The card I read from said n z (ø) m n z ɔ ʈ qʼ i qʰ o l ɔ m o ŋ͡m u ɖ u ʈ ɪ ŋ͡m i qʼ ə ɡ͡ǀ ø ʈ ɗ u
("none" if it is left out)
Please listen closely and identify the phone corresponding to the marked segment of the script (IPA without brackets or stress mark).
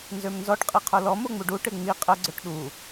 ø